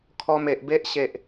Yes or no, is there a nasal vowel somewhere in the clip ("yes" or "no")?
no